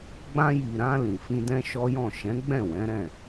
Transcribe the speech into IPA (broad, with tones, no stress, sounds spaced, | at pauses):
ɡ͡b ã˧ j i˨ ɾ ã˧ l ĩ˨ f ĩ˧ d ɛ̃˦ ʃ ɔ˦ j ɔ̃˦˨ ʃ ɛ̃˨˦ ɡ͡b ɛ̃˦˨ w ɛ̃˨˦ ɾ ɛ̃˦˨